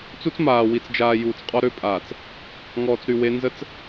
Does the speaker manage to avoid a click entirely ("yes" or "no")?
yes